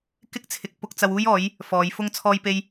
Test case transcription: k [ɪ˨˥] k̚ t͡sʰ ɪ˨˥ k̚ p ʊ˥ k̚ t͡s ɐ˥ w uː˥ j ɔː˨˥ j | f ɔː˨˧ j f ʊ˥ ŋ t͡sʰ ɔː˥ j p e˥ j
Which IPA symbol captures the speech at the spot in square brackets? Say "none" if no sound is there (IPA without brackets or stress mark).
ɪ˥